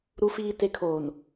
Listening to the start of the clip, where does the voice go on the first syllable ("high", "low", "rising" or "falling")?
low